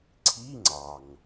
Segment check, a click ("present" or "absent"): present